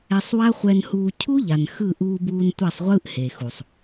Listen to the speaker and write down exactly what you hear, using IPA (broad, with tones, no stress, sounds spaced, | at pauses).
ɛ˧ sˤ w a˦ χʷ ɛ˧ n h uː˧ cʰ u˦ ʎ a˨ n x ɯ˦˨ ʔ uː˧ b uː˧ n tʷ a˦˨ sˤ ʁʷ ɯː˦ ʔ h e˨ x u˨ sˤ